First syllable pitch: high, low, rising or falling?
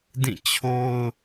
falling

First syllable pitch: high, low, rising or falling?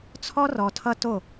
high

